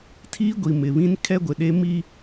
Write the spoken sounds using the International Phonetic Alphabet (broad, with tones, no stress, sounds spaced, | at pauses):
tʰ iː˦ ɡʷ i˨ m ɪ˨ β ĩ˦ n kʰ ɛ˦ ɡʷ ɪ˨ ɗ e˦ m i˦